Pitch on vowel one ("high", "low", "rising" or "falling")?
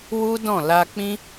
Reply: high